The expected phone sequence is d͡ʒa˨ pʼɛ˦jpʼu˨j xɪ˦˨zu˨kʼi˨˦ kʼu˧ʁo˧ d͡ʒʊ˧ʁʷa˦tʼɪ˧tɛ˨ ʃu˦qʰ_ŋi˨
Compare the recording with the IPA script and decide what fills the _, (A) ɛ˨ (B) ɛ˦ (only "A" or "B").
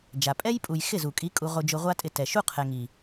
A